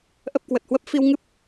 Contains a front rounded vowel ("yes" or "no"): no